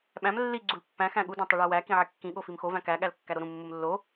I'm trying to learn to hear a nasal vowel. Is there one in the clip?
yes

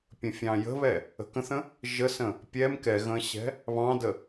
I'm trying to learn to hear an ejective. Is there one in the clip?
no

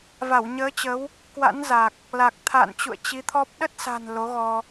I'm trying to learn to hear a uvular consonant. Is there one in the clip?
no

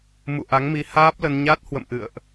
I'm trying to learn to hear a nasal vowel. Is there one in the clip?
no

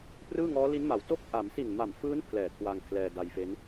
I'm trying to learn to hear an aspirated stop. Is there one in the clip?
yes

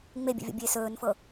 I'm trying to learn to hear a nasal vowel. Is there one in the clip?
no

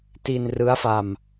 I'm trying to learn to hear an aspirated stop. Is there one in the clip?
no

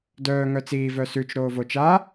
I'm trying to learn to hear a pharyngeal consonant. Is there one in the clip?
no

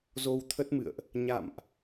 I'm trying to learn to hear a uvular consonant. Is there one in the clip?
no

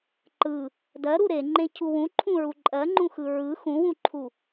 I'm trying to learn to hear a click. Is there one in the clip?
yes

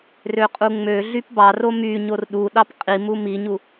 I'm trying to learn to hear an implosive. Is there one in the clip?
yes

